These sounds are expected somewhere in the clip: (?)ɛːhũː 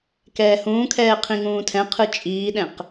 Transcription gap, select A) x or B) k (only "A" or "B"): B